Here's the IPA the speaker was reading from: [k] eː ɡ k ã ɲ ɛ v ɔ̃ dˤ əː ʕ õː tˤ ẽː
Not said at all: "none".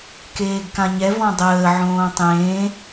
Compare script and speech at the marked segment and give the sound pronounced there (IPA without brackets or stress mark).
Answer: k